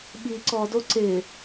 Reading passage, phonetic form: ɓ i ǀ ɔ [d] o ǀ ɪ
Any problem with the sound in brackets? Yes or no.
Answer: no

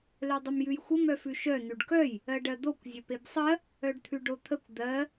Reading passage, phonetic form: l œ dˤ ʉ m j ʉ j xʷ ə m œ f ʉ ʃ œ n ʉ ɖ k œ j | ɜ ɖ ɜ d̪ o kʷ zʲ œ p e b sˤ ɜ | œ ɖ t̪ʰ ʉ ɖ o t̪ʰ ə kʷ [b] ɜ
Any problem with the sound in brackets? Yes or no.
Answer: yes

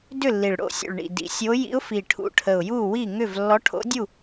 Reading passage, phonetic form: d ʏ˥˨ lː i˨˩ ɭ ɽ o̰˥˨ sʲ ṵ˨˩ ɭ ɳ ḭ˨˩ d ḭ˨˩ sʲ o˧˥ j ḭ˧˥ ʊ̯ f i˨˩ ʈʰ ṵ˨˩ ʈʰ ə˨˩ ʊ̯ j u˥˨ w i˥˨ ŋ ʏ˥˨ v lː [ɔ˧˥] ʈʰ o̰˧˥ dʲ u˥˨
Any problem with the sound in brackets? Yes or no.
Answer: no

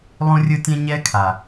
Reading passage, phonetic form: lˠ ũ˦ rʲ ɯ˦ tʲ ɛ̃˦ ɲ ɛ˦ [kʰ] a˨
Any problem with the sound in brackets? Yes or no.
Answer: no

